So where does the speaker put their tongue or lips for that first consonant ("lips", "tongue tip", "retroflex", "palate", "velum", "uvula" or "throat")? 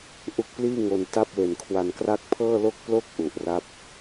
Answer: throat